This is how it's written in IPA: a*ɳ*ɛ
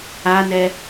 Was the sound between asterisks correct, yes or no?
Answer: no